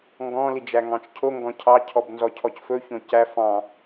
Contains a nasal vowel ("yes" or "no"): yes